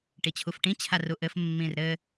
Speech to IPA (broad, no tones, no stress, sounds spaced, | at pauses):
ʈ i t͡ɕʰ u f ʈ ĩ t͡ɕʰ a r u ʔ ɘ f mː ĩ r ɾ ɘ